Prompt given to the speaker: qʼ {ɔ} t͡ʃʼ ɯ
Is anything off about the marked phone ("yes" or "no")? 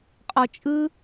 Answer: no